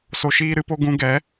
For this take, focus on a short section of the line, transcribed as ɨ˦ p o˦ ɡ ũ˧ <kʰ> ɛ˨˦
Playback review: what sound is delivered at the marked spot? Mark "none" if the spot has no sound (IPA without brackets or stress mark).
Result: ɡ